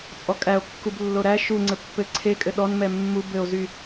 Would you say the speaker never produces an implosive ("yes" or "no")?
no